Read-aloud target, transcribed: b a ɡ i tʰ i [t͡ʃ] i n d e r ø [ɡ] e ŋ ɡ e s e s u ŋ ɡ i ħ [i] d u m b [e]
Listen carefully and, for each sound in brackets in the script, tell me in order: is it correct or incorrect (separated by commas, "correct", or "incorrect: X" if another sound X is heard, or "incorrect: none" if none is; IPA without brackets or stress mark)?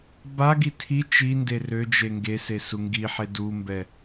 correct, incorrect: d͡ʒ, incorrect: e, incorrect: ɛ